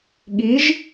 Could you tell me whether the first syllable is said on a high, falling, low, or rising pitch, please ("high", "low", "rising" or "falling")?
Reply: rising